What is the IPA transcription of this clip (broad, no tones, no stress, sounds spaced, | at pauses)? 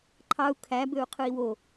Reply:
ǃʰ ɑ u̯ kʰ æ b ø u̯ qʰ ɯ i̯ w o